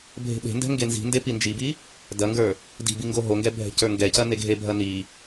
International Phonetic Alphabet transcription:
bʱ e̤ ɓ e̤ n d ɛ̤ ŋ ɡ e n z i̤ n d e p i n d͡ʒ i b i | d ɐ ŋ ɡ ə˞ | d i̤ b i ŋ ɡ o ɦ o ŋ ɡ ɛ bʱ ɛ̤ c ə˞ ŋ ɡ ɛ c ɐ n e ɡʱ e bʱ ɐ n i

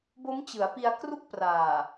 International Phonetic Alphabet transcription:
b o˦˥ m t͡ɕ ɯ˩˦ a̯ p i˧ a̯ k r u˥˩ k̚ p r aː˨˩

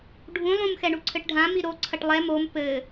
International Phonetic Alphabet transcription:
ɖʱ ũ lˠ ũ m x ɛ ɳ u ǀʰ ɘ ʈ ɖʱ ã m i ɾ o ǀʰ ɐ ʈ lˠ ɛ m o m p ɘ

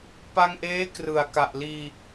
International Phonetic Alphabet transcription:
p a˧ ŋ ʔ eː˦˥ k r ɯ˨˩ a̯ k a˨˩ ʔ l iː˧

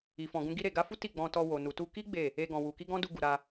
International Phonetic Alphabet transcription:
i˨ f ɔ̃˨ ɡ ũ˧ ɡ i˧ ɾ e˨ ɡ a˧ f u˦ t i˦˨ ɡ͡b ɔ̃˧ t ɔ˧ w o˨ n u˨ t u˧ k i˦ ɡ͡b e˦˨ | e˧ ɡ ɔ̃˨ w u˨ k i˧ ɡ ɔ̃˦ d u˧ ɡ u˨ ɾ a˧

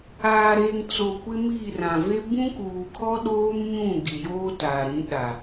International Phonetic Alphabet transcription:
aː˨ ɾ eː˨ ŋ t͡s o˨ kʷ ɪ˦ m i˦˨ r ã˨ v e˦ b ũ˦ k uː˨ kʰ ɔ˦ ɗ oː˦ m ɲ ũ˦˨ ɡ i˨ j oː˦ t a˨ ɾ ĩ˨˦ ɗ a˨

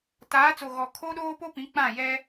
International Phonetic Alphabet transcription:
t aː˨˦ t͡s o˨ ɣ ɔ˨ kʰ o˦ ɗ oː˦ p o˦ p ĩ˨˦ k͡p ã˦˨ j ɛ˦

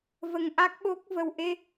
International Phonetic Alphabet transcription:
v ə˧ ŋ ʔ a˦˥ k̚ ɓ o˦˥ k̚ v ə˧ w ʔ e˧

